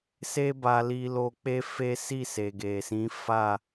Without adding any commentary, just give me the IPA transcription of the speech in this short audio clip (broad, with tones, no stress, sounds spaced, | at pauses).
s e˦ b a˧ l i˧ l o˧ k͡p e˦ f e˦ s i˦˨ s e˨ ɡ e˨ s ĩ˨˦ f a˦˨